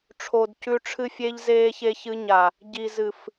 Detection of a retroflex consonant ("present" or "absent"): present